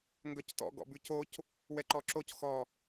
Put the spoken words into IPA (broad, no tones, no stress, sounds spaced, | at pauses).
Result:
ŋ ɡ œ c t ɔ̰ ɡ ɔ̰ b ʉ c o c | w ɛ ǃ ɔ ǁ o c x ɔ